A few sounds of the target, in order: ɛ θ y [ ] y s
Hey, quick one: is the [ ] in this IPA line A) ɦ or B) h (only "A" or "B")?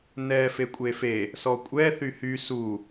B